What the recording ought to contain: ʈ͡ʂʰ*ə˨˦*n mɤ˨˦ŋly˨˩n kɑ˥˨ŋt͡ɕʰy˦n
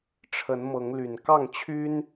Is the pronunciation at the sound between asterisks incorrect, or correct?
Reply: correct